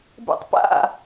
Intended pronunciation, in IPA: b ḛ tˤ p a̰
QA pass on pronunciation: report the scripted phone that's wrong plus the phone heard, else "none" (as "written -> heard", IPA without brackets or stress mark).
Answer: none